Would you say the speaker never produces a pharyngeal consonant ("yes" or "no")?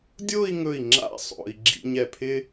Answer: yes